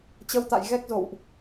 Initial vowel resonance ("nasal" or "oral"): oral